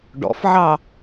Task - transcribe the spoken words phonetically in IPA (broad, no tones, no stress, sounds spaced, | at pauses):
ɖ ɔ̰ f ʕ ɑ